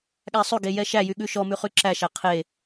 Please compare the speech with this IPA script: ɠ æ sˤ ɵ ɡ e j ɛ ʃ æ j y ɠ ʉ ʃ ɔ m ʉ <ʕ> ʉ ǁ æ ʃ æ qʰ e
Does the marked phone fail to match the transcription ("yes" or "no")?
yes